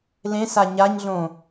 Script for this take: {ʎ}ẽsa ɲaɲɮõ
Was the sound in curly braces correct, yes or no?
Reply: no